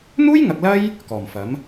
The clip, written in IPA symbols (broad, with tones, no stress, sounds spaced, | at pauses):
n̪ uː˥ j ŋ ɐ˨ k̚ l ɐ˥ j | k ɔː˨˩ m f ɐ˨˥ m